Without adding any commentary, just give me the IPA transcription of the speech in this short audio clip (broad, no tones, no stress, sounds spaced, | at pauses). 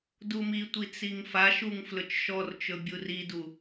d u m i tʷ i t͡s i ŋ f a ʃ u ŋ f l ɵ t͡ʃ ʃ ɔ r t͡ʃ ɵ bʲ u r i d u